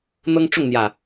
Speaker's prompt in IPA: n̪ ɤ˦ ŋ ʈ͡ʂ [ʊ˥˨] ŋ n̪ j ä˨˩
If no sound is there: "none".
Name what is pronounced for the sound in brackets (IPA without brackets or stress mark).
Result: ʊ˥˨